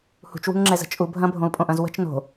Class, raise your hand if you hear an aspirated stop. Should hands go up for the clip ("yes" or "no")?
no